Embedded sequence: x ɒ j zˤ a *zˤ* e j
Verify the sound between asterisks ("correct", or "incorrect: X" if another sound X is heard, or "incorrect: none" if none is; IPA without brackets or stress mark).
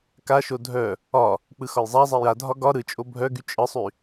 correct